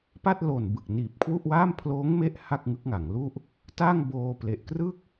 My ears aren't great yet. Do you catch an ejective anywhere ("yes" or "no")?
no